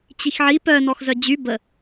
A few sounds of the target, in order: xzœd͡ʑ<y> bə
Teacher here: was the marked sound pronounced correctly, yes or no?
yes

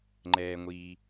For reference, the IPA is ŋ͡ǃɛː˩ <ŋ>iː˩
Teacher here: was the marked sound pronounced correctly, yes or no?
no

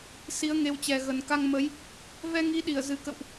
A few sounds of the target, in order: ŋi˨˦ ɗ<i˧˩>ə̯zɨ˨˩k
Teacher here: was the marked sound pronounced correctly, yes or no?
yes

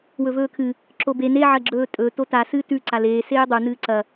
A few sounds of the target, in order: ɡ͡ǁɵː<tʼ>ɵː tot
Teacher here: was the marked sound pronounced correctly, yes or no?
yes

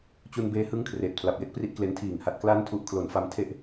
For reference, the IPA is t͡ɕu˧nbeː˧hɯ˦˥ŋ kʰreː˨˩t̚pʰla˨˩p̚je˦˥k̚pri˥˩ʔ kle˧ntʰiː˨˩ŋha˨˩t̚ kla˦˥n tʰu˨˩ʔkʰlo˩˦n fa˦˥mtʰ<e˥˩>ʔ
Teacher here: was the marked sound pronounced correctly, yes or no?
yes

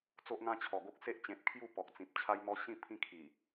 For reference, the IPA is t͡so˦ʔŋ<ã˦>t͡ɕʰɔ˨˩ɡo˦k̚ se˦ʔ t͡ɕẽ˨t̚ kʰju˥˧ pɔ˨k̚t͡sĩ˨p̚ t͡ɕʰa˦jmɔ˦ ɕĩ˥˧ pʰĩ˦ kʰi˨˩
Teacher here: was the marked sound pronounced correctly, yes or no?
yes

